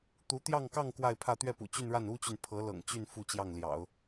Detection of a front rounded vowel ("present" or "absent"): present